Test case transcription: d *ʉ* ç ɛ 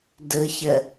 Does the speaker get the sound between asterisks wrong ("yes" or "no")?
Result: yes